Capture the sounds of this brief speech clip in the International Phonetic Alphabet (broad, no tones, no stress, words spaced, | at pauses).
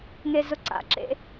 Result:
ŋezʊǀa̰ǁḛ